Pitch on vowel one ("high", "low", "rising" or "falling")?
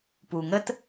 low